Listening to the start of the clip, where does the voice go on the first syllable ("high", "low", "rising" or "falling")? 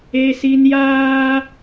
high